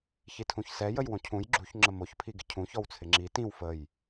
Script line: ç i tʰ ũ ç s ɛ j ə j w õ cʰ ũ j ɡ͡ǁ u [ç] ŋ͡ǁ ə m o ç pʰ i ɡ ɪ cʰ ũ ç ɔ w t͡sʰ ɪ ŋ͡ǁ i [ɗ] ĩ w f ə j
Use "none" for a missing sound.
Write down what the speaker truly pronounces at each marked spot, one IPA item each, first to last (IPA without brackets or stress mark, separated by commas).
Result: ç, t